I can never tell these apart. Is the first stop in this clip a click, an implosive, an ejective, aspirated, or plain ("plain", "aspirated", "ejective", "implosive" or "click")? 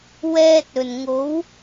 plain